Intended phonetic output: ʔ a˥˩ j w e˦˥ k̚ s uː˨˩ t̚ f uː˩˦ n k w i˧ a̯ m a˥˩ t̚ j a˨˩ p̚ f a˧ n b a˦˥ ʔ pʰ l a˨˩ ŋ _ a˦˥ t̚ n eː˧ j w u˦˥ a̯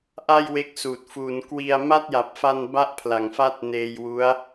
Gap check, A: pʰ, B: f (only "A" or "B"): B